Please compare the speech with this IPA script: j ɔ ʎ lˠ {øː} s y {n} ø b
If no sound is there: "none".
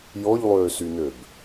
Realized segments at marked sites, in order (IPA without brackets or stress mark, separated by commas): øː, n